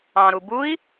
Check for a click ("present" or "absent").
absent